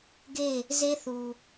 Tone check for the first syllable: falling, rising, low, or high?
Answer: falling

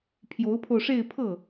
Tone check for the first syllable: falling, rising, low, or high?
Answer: rising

